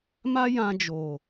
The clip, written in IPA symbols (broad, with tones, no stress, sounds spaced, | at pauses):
m a˦ j ã˧ d͡ʒ o˨